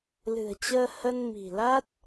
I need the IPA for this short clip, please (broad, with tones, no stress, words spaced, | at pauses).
lɨ̤˨˩ə̯t͡ɕəː˧ hə˧n mi̤˨˩la˦˥t̚